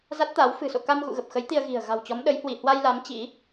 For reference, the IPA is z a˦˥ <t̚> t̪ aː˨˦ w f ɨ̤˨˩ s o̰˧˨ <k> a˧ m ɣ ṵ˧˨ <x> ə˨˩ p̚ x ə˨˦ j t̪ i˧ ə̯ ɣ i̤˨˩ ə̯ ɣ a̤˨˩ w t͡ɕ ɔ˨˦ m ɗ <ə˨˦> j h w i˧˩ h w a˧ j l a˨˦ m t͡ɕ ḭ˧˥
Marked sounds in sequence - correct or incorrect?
correct, correct, incorrect: ɣ, correct

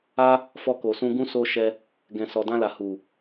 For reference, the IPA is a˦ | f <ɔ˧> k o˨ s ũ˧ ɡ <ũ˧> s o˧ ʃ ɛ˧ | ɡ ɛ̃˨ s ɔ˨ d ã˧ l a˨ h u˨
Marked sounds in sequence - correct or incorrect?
correct, correct

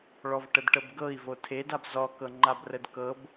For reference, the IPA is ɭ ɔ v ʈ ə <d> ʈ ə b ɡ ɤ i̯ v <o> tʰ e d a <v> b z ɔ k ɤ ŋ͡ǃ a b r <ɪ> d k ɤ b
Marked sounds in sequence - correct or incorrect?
correct, correct, incorrect: none, incorrect: ə

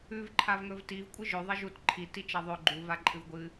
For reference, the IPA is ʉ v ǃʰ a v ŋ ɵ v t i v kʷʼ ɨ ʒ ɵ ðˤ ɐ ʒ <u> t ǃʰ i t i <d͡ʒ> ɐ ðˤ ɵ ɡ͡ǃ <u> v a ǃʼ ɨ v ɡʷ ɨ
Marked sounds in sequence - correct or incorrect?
correct, incorrect: t͡ʃ, correct

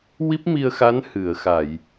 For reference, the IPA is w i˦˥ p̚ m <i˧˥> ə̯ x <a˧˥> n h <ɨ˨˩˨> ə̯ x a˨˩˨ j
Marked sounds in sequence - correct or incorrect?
incorrect: i˧, correct, correct

